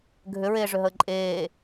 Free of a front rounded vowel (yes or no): no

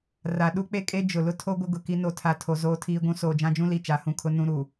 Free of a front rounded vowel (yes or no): yes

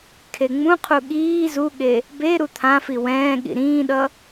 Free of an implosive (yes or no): no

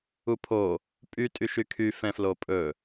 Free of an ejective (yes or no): no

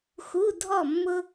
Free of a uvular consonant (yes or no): yes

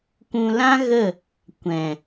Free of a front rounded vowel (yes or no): yes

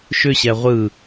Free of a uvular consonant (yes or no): no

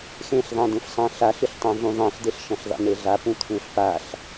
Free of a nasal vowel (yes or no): no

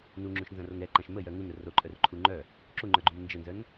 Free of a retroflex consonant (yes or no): yes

